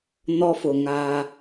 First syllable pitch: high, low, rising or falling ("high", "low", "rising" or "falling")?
high